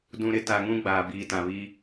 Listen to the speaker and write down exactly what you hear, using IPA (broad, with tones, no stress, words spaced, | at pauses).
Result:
dũ˨ ɾɪ˦ ta˨ŋũ˦ ɡ͡baː˨ biː˨tã˨βi˦